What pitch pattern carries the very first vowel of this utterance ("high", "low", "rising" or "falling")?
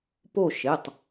falling